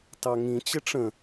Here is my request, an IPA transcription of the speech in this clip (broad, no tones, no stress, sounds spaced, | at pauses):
t ɑ ŋ ĩ t͡ɕ ɪ ʈ͡ʂ ə̃